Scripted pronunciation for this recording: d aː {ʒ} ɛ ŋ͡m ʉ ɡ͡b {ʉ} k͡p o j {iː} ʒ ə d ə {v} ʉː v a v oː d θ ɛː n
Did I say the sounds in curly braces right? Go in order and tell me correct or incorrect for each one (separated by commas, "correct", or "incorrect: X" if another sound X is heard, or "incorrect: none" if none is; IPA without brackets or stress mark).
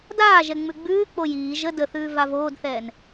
correct, incorrect: ʉː, correct, incorrect: θ